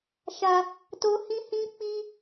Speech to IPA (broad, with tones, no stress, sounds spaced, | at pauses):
ʃ a˧ | t o˦ h ĩ˦ h ĩ˦ k͡p i˦